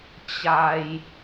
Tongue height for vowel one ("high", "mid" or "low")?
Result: low